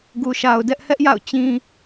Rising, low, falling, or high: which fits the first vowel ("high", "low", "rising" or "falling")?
low